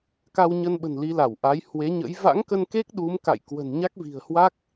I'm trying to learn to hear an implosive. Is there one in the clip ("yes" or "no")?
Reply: yes